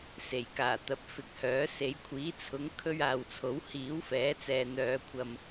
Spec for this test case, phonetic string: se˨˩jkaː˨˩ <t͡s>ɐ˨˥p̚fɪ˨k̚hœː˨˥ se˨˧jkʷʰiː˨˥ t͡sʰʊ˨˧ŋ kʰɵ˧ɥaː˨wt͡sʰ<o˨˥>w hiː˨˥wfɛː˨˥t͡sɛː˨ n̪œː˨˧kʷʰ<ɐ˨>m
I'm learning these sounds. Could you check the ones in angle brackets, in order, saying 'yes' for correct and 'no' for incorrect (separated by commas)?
no, yes, yes